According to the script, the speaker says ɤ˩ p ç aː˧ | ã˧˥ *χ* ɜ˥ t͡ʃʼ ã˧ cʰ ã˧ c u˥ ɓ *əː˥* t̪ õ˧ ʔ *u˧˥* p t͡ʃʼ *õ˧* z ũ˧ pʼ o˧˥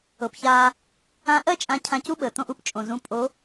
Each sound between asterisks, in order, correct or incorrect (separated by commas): incorrect, incorrect, correct, incorrect